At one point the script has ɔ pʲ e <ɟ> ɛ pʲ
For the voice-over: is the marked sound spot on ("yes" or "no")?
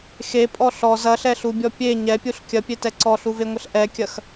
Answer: no